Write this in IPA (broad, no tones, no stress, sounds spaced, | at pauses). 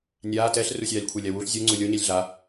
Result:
nʲ aː t ɛ ɬ r u sʲ aː lʲ kʷʰ ɛ lʲ a w u ɬ zʲ u ŋ͡ǀ u lʲ o ɲ ɛ lʲ ɮ a